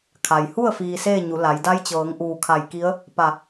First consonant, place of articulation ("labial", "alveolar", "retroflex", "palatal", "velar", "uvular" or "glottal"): velar